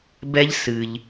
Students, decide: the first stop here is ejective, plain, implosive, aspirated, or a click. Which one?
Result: plain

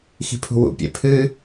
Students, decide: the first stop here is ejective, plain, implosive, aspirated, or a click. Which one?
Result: aspirated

